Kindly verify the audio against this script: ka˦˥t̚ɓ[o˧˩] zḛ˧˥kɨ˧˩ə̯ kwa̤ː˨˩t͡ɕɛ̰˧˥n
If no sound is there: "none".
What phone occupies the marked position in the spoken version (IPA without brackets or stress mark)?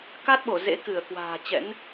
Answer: o˧˩